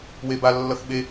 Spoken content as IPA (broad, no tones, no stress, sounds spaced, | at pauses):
w e b a lː ʌ x ɓ e